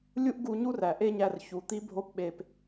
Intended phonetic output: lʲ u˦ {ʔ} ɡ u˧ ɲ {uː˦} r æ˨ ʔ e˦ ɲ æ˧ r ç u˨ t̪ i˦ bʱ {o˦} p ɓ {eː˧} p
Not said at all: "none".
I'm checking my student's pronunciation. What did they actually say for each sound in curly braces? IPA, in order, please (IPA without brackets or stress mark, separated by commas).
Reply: ʔ, u˦, o˦, e˧